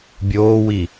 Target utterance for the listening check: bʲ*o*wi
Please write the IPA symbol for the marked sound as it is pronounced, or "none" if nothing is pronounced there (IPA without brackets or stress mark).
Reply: oː